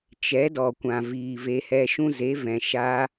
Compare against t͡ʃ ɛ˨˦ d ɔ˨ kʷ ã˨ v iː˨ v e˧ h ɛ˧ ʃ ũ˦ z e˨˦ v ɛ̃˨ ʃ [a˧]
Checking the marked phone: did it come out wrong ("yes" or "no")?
no